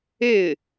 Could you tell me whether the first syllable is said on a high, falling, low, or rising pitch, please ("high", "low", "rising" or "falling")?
falling